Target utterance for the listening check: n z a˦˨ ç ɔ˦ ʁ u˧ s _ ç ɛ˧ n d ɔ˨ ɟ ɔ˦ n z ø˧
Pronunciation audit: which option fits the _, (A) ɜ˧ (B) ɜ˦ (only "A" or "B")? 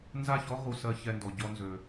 A